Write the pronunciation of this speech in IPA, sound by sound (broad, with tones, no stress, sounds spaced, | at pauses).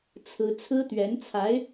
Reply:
t͡sʰ ɹ̩˥ t͡sʰ ɹ̩˥ t̪ ɥ ɛ˧˥ n t͡sʰ a˧˥ ɪ̯